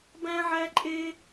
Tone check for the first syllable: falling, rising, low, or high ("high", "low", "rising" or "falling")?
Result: high